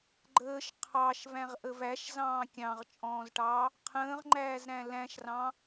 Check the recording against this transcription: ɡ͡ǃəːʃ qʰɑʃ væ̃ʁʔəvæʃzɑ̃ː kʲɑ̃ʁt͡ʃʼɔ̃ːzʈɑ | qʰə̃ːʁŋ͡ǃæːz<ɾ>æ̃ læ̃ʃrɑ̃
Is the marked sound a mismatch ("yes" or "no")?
no